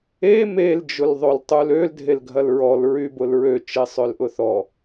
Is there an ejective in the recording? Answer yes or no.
no